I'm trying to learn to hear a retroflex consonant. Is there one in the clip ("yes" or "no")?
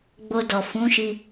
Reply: no